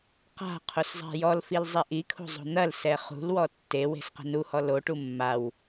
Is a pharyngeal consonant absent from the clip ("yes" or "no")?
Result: yes